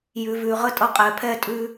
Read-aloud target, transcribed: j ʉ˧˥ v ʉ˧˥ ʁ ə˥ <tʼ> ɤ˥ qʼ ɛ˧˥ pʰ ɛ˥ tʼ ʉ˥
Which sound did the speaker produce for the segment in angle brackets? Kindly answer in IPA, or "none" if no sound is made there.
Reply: tʼ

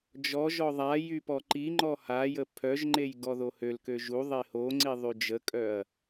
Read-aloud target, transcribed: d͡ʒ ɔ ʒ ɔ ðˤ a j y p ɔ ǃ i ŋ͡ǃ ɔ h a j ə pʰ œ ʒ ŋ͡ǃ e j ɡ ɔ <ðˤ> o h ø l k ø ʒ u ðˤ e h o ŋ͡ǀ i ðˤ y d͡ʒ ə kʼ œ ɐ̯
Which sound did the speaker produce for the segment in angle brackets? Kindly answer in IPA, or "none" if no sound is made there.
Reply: ð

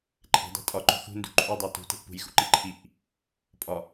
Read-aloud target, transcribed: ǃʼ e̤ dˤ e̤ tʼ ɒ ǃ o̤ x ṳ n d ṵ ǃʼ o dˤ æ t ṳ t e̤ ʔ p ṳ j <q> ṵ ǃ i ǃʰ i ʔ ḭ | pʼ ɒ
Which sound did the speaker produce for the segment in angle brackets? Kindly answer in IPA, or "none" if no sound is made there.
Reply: x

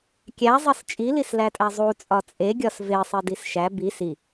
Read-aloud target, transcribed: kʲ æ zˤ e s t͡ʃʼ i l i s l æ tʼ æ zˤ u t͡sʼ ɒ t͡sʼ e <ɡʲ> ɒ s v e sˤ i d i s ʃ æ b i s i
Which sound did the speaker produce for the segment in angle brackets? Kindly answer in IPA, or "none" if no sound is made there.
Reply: ɡʲ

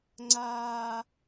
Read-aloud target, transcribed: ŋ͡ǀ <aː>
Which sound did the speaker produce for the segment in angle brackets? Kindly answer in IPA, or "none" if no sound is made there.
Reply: aː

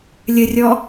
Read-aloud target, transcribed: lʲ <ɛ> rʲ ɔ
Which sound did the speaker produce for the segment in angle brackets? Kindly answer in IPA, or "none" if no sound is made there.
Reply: ə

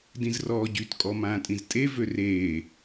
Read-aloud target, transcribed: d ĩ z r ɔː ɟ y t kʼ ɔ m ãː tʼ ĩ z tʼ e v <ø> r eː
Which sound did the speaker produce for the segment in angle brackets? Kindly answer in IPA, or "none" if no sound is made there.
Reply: ø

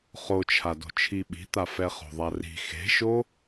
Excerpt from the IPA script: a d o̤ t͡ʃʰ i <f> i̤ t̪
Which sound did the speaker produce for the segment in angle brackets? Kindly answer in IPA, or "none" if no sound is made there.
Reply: ɓ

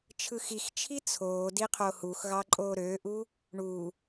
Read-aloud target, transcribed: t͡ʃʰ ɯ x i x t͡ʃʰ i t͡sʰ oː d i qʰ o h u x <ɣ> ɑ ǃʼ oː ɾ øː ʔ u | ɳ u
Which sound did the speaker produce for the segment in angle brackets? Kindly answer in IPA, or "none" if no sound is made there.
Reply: ɣ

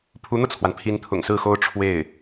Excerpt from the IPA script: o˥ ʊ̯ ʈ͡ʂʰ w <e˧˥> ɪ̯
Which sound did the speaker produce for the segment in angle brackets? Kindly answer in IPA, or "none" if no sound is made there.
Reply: e˥˩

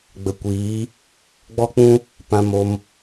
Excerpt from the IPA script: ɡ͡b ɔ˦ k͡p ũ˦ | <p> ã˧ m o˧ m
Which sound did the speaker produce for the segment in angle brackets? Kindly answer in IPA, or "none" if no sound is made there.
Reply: p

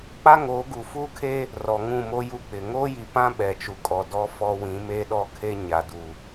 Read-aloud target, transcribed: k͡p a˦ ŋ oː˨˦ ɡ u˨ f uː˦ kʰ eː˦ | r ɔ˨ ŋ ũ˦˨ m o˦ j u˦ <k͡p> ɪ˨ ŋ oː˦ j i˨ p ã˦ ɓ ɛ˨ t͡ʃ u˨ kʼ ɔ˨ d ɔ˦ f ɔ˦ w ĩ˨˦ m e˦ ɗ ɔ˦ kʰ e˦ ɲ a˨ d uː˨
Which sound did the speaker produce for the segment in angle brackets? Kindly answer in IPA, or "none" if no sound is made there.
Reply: k͡p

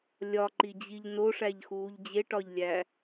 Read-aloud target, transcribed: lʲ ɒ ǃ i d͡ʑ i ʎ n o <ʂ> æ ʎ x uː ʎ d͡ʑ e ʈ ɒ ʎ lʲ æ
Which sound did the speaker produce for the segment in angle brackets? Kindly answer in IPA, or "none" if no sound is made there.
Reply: ʂ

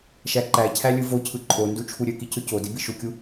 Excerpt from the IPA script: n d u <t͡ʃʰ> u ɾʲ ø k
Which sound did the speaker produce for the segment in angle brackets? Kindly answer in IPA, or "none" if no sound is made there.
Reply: t͡ʃʰ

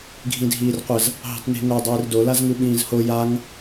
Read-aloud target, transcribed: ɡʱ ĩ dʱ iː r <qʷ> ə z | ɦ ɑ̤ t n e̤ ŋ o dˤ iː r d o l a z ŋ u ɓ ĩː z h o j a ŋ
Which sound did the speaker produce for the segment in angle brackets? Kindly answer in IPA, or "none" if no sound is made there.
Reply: qʷ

